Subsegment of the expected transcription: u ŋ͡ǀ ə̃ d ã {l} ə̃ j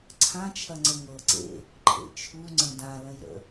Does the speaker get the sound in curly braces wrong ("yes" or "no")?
no